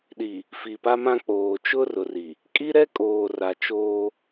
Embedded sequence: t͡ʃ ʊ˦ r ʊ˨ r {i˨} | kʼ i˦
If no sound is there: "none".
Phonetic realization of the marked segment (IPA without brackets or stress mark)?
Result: i˨